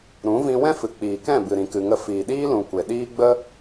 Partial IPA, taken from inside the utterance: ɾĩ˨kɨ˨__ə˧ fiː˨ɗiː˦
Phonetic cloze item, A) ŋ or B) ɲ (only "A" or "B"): A